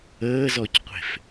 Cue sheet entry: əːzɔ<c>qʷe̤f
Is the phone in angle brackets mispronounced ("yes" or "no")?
no